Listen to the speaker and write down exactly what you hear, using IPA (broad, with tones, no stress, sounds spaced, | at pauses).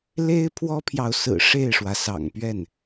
l e˥ ɪ̯ pʰ w ɔ˥ pʰ j ɑ˨ ʊ̯ s ɹ̩˨˩ ʂ e˥˩ ɪ̯ ʂ w ä˩ s ɑ̰˨˩ ŋ p ɥ ɛ˥˩ n